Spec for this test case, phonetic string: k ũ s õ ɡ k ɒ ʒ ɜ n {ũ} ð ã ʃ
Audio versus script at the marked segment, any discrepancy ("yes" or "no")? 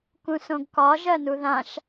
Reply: yes